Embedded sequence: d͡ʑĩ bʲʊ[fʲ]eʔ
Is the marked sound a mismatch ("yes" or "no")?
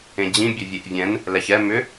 yes